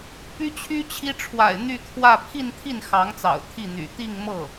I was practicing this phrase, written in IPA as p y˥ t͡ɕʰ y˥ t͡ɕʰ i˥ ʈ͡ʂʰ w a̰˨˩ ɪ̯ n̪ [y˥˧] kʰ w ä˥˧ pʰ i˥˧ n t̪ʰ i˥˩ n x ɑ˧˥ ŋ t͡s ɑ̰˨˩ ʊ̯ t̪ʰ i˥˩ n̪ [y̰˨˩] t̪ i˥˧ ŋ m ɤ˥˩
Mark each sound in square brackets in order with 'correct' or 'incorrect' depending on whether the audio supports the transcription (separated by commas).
correct, correct